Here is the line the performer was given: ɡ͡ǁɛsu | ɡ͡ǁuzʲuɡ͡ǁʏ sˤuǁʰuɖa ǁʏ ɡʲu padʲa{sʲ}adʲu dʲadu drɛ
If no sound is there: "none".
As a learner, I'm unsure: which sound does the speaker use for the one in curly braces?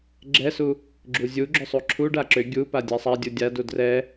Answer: sˤ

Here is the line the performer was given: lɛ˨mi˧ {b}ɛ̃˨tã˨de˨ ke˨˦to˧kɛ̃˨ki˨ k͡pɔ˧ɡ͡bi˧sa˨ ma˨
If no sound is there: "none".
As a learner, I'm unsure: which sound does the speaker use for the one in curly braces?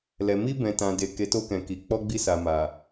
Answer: b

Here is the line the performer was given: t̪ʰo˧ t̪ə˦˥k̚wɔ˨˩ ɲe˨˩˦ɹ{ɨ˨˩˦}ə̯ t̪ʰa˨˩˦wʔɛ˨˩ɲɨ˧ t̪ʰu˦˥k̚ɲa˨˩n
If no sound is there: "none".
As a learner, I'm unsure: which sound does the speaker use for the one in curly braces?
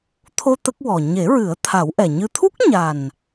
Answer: ɨ˨˩˦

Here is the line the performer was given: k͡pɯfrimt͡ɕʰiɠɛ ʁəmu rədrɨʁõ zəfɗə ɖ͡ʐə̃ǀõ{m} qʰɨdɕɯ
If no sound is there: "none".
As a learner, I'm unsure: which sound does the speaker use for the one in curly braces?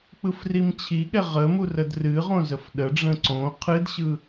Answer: none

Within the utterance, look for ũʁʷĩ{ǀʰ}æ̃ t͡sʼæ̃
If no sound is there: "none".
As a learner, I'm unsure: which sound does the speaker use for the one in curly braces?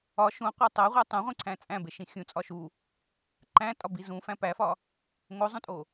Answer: ǀʰ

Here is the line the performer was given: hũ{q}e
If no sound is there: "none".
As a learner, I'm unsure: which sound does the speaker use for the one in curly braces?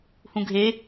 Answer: ɡʱ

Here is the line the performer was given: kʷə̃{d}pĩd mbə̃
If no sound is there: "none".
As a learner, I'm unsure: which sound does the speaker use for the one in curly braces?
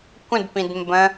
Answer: d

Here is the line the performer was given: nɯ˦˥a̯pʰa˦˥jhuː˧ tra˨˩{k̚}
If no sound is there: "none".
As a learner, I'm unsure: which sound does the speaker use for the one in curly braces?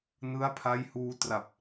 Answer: p̚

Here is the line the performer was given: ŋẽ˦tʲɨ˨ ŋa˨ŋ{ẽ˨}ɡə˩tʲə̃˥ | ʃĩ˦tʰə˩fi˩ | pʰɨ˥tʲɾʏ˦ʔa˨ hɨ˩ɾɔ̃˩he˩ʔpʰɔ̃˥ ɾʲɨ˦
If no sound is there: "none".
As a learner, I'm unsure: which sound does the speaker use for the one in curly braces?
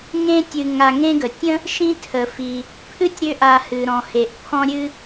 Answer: ẽ˦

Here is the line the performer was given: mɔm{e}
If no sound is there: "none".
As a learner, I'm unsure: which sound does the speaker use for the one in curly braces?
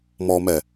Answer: ɛ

